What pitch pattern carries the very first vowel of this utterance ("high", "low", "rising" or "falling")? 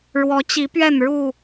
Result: rising